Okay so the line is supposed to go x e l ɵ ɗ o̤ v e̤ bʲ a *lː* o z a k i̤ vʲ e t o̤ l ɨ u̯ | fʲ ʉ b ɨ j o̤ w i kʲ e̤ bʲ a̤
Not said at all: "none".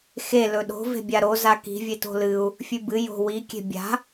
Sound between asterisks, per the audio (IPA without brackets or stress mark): ɾ